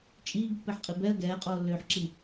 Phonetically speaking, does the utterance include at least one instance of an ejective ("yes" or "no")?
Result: yes